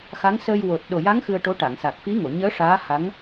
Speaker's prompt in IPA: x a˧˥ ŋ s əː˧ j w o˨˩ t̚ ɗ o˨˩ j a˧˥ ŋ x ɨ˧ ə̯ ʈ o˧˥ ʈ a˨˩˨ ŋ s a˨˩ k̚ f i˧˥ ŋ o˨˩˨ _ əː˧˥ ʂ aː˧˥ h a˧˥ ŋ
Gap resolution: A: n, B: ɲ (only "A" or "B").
B